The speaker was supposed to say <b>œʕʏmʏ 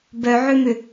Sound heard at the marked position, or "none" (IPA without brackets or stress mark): b